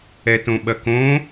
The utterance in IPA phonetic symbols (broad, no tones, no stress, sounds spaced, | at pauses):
ɛ t õ ɓ ɐ k õ